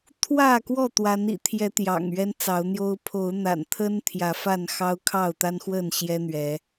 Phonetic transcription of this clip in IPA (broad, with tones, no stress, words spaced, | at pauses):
t̪ʰwä˥˨kwɔ˥˨ t̪wa˨˦nḭ˨˩t̪ʰjɛ˨˦ t̪jɑ̰˨˩ŋɥɛ˦nt͡sɑ˨˦ʊ̯n̪jo˦ʊ̯ pʰo˨˦ʊ̯n̪a̰˨˩nt̪ʰə˦n t̪ʰjä˨˦fa˥˨n xɑ˦ʊ̯kʰɑ˥˨ʊ̯t̪a˦nxwə˥˨n ɕjɛ˦n̪ɥɛ˨˦